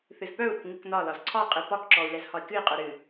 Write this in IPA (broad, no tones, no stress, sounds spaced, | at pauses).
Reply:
θ ɨ z p œ u̯ ɾ ʊ k ŋ ɨ k n ɒ l ɒ z ǀʰ ɒ qʼ ɨ p ɒ k ǁ ɔ u̯ l ɛ z h ɒ i̯ k ɨ i̯ qʼ œ ɾ ɨ